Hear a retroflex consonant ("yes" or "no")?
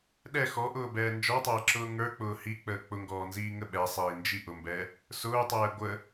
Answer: no